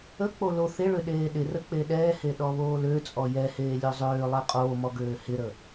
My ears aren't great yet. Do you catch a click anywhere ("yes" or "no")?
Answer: no